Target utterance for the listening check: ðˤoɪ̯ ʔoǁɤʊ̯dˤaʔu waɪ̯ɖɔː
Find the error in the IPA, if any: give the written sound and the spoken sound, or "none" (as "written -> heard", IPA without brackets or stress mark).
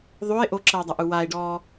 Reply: none